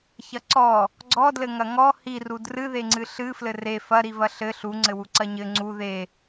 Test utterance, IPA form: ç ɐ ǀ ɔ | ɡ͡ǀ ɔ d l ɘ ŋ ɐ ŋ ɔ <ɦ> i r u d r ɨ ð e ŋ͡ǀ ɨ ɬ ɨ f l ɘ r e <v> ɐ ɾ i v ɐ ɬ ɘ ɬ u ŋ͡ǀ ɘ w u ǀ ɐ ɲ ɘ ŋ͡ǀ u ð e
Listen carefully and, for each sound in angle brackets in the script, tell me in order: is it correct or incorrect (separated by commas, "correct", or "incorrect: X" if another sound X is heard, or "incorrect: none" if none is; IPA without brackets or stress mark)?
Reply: incorrect: h, incorrect: f